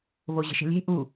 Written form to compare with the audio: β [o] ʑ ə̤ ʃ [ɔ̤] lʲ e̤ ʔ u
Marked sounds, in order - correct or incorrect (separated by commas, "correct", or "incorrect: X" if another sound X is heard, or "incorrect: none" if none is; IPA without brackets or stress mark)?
correct, incorrect: ə̤